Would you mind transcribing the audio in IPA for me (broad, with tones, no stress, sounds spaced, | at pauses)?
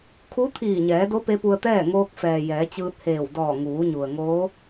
kʰ u˧˥ t̪ʰ iː˧˩ ɲ ɛː˩˧ d o˧˥ p e˧˥ p u˧ ə̯ t̪ ɛː˥˨ ŋ oː˧ k̚ f ɛː˩ j ɛː˩˧ t͡ɕ ɯː˧ t̚ h eː˧˩ w d ɔː˧˩ ŋ uː˩˧ ɲ u˩ ə̯ ŋ oː˧˥